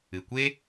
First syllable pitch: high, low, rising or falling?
low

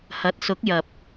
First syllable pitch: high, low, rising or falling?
rising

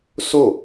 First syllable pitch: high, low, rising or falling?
falling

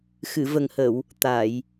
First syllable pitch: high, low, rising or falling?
low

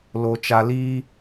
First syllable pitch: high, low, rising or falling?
low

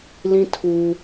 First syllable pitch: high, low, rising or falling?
high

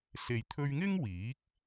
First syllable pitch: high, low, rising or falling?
low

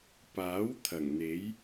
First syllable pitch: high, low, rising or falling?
rising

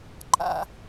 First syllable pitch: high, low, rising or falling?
low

